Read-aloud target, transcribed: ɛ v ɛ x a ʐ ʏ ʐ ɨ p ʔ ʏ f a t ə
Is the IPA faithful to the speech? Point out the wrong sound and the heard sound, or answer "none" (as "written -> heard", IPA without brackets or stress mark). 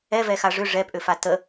ɨ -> ɛ